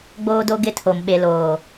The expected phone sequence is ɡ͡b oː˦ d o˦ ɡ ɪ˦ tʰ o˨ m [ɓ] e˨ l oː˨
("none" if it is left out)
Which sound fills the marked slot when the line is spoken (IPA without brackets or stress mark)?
ɓ